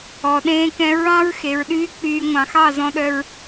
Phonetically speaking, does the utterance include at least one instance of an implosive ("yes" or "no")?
yes